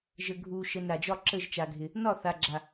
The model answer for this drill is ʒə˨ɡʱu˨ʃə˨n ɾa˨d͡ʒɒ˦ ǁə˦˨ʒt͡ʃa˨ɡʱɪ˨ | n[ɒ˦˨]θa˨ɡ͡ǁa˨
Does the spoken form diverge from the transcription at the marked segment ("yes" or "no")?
no